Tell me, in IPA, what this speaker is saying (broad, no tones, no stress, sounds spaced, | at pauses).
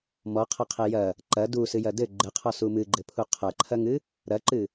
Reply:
m ɔ qʰ ɐ qʰ e j ɐ | ǃ ɐ d u s ɨ j ɐ d ɘ ɡ͡ǃ ɘ qʰ ɔ s u m ɨ ɡ͡ǃ ɘ pʰ u qʰ ɐ ǃʰ ɐ ŋ ɨ | ɾ ɐ ǃ ɨ